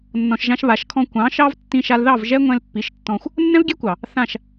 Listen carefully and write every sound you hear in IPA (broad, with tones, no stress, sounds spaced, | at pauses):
nː ɔ̃˧ ʃ ʒ ã˦ ʃ β a˨˦ ʃ kʰ ɔ̃˦ kʷ ɑ̃˨˦ ʃ ɑ˦ v tː ĩ˧ ʃ a˧ l ð ɑ˦˨ v ʒ ɛ˦ ŋʷ ɛ̃˧ l pː i˨˦ ʃ tː ɔ̃˧ xʷ | nː ɛ̃˦ v ɡʲ ɛ˦ kʷ ɑ˨ | θ ã˦˨ ʃ